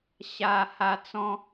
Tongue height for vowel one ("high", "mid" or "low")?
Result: low